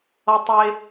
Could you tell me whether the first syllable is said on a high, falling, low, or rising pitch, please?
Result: low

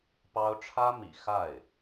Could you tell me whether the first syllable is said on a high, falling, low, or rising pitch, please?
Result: high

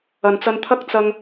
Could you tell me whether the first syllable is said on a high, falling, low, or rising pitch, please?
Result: low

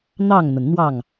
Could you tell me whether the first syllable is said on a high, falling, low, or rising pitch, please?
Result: falling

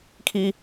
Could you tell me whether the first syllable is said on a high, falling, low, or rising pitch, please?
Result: high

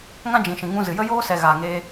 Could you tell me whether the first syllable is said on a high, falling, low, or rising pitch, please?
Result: high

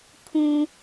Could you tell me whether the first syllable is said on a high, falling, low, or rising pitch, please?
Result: low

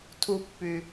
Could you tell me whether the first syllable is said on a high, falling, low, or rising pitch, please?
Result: low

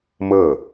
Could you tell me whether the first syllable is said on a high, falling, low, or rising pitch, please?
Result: falling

